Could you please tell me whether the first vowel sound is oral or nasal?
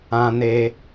nasal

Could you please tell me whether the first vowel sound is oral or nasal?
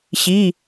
oral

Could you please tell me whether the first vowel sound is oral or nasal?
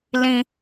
nasal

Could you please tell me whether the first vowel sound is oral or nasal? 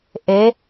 oral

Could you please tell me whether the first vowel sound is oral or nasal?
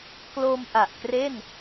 oral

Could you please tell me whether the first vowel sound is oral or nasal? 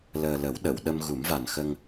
oral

